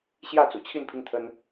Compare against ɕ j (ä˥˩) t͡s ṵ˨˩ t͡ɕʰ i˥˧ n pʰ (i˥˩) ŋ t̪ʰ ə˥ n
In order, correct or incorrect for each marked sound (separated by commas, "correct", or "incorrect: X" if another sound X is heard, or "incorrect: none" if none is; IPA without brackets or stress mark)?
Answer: correct, correct